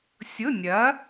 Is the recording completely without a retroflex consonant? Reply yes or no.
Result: yes